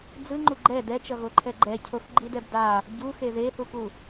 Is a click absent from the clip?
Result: no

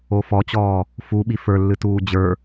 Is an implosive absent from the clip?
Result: no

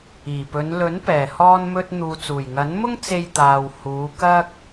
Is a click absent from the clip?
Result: yes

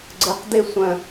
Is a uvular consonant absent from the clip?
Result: no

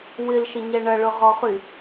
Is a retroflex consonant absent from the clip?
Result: no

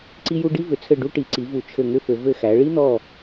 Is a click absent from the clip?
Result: no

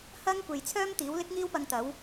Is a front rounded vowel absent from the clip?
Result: no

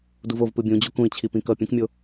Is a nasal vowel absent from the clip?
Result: no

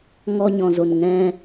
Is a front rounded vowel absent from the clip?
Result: yes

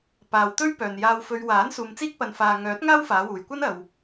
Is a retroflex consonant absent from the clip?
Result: yes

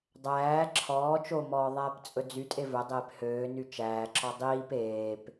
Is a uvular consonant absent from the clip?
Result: yes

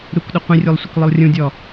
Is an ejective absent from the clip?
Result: yes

